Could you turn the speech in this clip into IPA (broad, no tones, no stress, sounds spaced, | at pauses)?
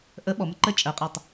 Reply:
ʔ ə ɓ ɔ m ə ǃ ə t͡ʃʼ ɜ qʼ a tˤ